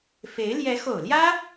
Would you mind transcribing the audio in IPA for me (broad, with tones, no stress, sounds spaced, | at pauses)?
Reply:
f e˧˥ ɪ̯ l j ɛ˧˥ x o˨˩ ʊ̯ l j ä˥